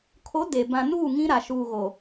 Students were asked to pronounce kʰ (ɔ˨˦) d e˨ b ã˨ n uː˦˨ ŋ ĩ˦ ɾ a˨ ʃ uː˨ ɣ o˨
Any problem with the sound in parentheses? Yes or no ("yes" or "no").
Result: yes